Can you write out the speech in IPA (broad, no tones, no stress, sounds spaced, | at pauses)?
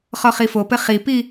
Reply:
χ ɔ χ i f o p ɘ χ i p i